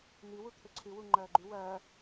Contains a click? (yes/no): yes